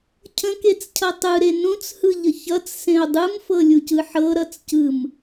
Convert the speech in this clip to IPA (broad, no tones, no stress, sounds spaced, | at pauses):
cʰ ə̃ k e t͡s cʰ ʌ tˤ ɯ ɾ e n ũ t͡s h ɯ ʎ ə ç ʌ t͡s s ẽ o̯ dˤ ɯ m f ɤ lʲ u c ɯ ħ ɤ ɾ ʌ t͡s c ɯ m